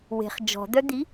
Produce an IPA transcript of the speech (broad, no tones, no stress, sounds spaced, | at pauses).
w e̤ χ d͡ʒ ɔ̤ d̪ œ d̪ i